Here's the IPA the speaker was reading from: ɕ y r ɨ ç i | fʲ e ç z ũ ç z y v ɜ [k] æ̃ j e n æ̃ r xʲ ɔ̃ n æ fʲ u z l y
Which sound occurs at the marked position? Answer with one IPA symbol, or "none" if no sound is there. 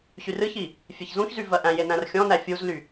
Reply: ʔ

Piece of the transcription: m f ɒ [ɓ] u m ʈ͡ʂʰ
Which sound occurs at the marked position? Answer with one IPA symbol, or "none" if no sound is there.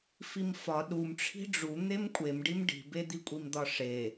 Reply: ɗ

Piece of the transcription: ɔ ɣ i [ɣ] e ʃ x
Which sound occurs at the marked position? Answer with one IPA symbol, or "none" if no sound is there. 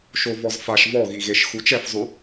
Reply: ɣ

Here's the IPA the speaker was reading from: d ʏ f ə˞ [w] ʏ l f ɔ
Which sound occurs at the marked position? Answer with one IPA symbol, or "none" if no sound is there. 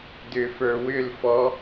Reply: w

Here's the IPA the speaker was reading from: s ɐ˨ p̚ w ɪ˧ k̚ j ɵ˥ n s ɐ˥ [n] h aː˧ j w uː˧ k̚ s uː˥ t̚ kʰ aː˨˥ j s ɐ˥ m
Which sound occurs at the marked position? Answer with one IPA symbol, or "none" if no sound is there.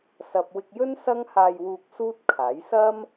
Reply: ŋ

